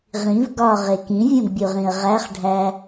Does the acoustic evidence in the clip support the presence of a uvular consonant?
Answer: yes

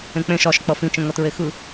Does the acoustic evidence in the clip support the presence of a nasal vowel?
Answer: yes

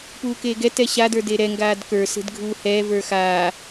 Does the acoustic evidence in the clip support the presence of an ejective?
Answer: no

